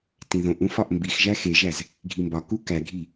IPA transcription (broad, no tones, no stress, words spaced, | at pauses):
tĩðõʔũ fɒʔmbixʒæ xeʒæz | ɡʱimbɒku kæɡʱi